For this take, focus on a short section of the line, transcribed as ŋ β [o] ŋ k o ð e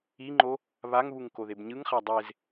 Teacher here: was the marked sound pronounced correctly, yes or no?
no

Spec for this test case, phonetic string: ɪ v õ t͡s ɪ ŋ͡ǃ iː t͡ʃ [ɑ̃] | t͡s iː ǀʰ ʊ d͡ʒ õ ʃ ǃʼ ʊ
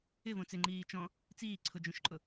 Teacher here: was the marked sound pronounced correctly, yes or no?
no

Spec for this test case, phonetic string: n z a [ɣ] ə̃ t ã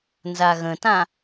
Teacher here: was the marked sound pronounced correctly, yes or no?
yes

